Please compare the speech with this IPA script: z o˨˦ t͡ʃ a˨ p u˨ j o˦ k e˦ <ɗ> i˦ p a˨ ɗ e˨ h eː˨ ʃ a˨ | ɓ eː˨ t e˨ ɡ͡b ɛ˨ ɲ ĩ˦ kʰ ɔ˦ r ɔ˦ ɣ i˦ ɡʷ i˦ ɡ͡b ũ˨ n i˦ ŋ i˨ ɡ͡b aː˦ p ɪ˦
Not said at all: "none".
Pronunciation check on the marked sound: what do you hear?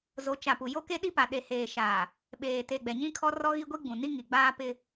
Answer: ɗ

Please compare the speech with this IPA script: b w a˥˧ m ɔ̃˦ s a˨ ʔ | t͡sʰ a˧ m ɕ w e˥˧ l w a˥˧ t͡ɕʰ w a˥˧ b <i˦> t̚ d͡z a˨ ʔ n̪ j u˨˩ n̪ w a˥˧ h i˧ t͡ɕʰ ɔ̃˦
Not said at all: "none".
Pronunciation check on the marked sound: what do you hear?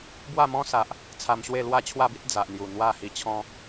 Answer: i˦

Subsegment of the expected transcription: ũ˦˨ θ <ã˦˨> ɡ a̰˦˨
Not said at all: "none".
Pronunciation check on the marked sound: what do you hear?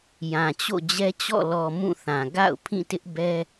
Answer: ã˨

